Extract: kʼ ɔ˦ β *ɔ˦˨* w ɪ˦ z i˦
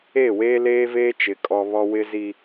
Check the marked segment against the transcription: incorrect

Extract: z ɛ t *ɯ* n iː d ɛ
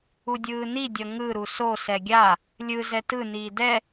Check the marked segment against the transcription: correct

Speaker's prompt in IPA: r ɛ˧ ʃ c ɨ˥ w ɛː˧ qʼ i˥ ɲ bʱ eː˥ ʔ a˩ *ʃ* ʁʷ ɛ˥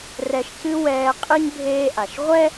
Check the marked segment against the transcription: correct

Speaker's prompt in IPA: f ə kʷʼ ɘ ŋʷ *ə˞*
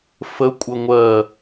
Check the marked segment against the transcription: incorrect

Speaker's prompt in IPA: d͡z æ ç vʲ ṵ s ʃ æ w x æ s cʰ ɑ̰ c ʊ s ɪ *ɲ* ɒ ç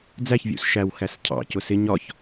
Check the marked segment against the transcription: correct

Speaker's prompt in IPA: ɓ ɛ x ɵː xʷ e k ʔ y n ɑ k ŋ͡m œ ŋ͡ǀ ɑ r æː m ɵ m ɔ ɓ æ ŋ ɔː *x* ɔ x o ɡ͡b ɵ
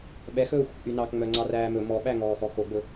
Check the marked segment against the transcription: correct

